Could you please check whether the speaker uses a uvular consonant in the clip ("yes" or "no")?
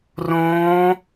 no